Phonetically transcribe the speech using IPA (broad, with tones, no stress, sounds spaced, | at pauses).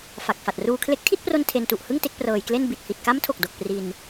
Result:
f a˨˩ k̚ f a˨˩ t̚ r uː˧ kʰ l e˦˥ k̚ tʰ i˥˩ t̚ p r o˧ n tʰ e˧ n t u˨˩ ʔ h ɯ˥˩ ŋ t e˦˥ k̚ p r ɤː˧ j k l e˥˩ n b i˨˩ t̚ h i˨˩ t̚ k a˦˥ m tʰ o˨˩ k̚ d o˨˩ k̚ p r i˧ n